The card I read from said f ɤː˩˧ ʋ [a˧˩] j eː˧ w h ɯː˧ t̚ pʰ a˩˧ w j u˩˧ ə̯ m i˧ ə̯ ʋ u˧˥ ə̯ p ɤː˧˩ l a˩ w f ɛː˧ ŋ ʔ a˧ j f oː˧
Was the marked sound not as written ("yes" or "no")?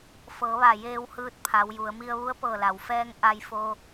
no